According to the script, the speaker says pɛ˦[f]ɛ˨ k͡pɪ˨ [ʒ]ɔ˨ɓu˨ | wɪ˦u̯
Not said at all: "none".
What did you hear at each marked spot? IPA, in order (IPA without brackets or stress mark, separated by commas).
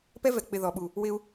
v, ð